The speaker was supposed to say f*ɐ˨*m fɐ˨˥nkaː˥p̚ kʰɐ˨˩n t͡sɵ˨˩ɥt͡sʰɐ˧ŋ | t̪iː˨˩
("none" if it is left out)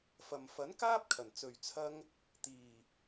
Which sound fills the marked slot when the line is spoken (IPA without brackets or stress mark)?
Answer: ɐ˨